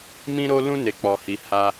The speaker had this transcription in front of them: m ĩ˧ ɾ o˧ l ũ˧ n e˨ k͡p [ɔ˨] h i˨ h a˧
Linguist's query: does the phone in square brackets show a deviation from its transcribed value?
no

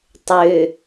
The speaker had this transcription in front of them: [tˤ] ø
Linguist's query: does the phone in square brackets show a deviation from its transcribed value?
no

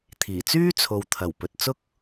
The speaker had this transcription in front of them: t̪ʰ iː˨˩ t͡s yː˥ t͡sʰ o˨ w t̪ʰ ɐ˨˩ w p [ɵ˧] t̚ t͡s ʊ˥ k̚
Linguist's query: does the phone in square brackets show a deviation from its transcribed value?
yes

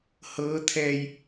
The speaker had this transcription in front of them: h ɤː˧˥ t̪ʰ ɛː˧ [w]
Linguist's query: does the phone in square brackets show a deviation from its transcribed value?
yes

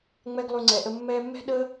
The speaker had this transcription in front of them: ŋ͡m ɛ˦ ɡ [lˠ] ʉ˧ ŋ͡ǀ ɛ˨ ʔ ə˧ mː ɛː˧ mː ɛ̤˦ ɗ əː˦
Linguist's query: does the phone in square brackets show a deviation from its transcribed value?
no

